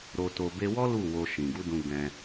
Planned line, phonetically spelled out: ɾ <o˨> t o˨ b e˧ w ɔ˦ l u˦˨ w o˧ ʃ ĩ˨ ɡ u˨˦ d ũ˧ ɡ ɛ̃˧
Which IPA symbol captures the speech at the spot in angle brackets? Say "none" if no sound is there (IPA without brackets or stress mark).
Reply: o˨